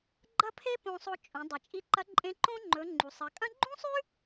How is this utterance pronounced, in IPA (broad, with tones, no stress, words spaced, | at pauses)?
ɡ͡ǃɐ˥pʰe˥ põ˧sˤo˧ t͡ʃʼõ˩˧ dˤɨ˩ t͡ʃʼi˧ǃɐ˧˥ǃʼẽ˧˥ ǃõ˥ ŋ͡ǃɵ˩˧ ŋ͡ǃu˩sˤɐ˩˧kʼɐ̃˥ ɡ͡ǃũ˥sˤʉ˥